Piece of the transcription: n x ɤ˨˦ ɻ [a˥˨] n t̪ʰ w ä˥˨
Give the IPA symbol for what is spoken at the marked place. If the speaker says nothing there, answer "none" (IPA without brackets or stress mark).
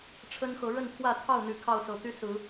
ə˥˨